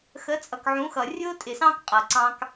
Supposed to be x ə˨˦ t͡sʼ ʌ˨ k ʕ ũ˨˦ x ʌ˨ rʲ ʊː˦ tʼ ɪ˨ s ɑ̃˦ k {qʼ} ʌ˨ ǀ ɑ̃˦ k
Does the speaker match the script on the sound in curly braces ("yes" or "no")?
yes